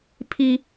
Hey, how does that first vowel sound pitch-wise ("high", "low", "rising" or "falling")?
high